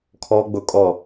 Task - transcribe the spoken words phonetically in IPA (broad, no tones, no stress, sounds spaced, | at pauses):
kʰ ɔ ɡ͡b ʊ kʼ ɔ